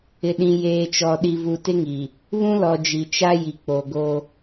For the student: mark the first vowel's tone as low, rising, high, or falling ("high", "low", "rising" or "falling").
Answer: low